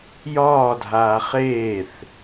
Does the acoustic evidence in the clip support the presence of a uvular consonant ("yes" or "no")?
yes